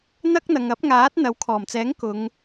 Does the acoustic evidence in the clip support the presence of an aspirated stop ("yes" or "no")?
yes